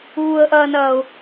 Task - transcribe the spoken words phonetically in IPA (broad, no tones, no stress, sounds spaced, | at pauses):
uː ə̯ ʔ ɐː n ɐː ʊ̯